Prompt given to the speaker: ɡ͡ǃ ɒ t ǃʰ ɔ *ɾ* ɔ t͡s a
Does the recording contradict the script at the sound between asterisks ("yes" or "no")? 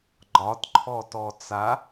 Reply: yes